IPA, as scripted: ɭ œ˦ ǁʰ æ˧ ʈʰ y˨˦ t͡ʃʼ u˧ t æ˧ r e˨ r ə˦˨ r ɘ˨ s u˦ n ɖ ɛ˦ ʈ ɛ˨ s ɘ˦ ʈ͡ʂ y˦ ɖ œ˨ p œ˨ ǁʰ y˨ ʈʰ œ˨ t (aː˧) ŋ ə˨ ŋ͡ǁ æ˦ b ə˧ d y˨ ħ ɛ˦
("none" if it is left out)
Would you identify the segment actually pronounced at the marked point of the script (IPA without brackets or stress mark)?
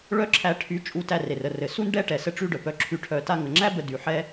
a˧